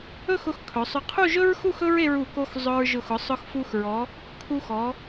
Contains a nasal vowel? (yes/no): no